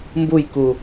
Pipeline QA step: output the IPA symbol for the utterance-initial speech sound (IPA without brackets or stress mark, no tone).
m